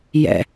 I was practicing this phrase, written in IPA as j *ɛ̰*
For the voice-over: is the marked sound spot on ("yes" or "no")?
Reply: yes